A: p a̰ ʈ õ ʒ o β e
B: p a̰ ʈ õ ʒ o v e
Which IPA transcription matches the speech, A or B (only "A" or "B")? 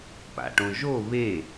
A